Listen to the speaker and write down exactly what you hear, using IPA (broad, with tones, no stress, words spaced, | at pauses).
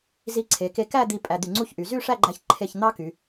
zi˧ǀʰe˩˧ke˧ kæ˥˧ d̪i˧ pʼæ˧d̪y˧˩ŋ͡ǀu˥˧çʔy˩˧ zy˥˧ʂæ˥˧ɡ͡ǃæ˧ç ǃʰe˧˩ç n̪ɑ˥ky˩˧